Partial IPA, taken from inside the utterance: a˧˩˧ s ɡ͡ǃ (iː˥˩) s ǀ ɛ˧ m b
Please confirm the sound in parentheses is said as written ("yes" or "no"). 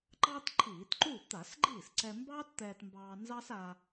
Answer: yes